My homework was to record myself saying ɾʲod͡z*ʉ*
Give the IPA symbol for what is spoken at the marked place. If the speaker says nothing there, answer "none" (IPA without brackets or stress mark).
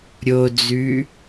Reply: ʉ